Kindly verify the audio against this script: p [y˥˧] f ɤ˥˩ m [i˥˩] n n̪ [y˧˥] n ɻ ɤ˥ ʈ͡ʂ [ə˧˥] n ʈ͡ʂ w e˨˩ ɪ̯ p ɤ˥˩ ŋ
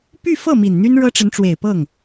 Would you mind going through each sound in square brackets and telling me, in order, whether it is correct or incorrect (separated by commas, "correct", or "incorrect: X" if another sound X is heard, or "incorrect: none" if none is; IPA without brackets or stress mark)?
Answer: correct, incorrect: i˨˩, incorrect: y˥, correct